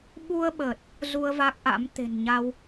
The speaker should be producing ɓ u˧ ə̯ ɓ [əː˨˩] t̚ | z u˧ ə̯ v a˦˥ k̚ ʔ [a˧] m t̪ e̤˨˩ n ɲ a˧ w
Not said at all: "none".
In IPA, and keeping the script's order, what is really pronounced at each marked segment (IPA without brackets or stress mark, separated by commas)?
əː˨˩, a̰˧˥